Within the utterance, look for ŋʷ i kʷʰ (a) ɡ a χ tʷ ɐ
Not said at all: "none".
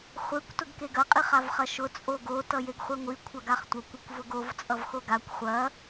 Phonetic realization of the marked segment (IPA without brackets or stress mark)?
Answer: ɐ